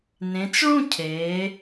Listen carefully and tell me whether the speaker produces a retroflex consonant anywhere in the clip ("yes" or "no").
yes